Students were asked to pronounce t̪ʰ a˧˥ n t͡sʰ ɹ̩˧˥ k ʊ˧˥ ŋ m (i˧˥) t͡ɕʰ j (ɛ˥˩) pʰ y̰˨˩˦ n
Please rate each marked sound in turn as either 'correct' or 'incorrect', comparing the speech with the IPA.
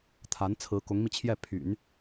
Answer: incorrect, correct

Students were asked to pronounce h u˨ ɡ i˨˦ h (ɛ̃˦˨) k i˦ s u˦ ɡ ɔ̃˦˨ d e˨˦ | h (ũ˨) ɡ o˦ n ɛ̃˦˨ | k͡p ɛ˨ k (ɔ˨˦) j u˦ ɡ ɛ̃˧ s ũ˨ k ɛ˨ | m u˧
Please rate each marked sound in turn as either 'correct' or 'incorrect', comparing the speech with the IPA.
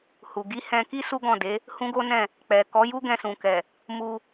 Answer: incorrect, incorrect, correct

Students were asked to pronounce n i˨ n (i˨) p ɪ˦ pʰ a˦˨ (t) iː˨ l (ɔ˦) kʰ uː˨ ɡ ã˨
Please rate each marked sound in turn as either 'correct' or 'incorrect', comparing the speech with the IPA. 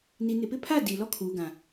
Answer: incorrect, incorrect, correct

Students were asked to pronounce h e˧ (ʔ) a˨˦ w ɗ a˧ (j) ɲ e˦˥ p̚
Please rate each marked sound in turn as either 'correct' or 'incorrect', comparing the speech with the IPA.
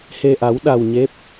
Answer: correct, incorrect

